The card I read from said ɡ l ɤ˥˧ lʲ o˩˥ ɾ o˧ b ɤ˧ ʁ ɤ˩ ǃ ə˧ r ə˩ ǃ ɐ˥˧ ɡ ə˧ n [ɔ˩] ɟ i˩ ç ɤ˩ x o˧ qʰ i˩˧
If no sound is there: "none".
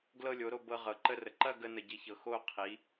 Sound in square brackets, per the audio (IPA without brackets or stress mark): ə˩